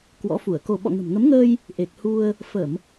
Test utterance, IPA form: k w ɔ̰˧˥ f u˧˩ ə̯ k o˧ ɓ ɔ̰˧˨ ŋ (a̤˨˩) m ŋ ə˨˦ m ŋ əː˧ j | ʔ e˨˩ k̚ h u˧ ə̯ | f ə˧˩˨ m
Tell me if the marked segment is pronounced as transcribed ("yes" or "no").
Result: no